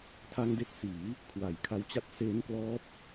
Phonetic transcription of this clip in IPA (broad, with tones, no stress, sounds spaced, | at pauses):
tʰ a˧ ŋ d e˦˥ k̚ s iː˩˦ | kʰ w a˨˩ j kʰ a˧ w t͡ɕ a˦˥ t̚ s eː˦˥ n k l ɔː˦˥ p̚